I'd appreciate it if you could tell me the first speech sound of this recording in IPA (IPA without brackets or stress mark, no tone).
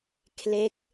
kʰ